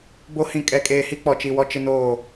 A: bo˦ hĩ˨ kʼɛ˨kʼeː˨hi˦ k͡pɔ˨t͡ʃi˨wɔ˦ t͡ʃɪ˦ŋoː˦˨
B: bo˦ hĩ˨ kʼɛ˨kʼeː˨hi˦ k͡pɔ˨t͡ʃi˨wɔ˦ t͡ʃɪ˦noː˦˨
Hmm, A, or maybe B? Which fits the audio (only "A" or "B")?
B